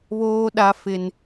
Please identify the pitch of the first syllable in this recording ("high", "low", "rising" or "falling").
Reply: high